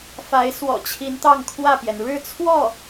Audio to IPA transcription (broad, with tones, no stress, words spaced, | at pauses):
fa˧˥ɪ̯ swɔ̰˨˩t͡ɕʰi˧˥n t̪ɑ˥˧ŋkʰwä˥˩pjɛ˩n ɻɻ̩˥˧t͡sʰwɔ˥˩